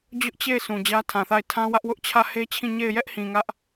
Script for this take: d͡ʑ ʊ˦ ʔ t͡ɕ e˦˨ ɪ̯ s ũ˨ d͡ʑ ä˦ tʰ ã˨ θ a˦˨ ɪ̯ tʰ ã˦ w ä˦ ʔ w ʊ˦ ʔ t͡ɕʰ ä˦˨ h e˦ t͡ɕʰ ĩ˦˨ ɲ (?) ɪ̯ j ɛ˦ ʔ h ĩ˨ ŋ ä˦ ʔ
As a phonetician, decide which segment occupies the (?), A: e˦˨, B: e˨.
A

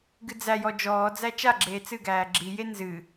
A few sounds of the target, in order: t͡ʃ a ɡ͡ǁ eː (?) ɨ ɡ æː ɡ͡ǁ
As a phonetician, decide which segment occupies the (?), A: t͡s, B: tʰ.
A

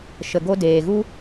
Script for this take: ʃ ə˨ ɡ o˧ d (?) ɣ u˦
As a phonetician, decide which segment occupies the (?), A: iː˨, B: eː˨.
B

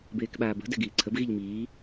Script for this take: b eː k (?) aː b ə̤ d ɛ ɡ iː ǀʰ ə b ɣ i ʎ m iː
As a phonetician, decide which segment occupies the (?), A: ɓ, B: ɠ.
A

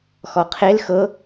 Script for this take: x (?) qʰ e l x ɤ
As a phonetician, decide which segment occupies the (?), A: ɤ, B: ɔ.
B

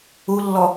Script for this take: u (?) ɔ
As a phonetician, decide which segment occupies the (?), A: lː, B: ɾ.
A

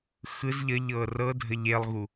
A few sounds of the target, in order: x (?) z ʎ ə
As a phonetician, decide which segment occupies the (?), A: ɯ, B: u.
A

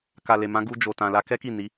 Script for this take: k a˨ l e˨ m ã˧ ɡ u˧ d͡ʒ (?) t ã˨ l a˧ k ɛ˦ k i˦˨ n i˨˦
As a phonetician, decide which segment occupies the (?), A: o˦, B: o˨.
B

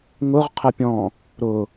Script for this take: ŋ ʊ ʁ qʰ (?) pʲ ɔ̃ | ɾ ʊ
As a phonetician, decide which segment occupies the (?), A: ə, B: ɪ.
A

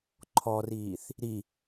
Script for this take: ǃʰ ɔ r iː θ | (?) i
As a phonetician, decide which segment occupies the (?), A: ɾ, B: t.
A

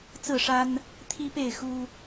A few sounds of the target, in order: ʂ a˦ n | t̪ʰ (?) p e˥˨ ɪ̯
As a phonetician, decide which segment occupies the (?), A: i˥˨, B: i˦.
B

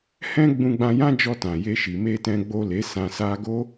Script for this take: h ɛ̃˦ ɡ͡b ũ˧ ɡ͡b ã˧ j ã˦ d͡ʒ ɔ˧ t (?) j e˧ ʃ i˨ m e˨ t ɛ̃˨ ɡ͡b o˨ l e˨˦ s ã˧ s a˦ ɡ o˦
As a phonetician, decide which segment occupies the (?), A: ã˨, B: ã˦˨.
A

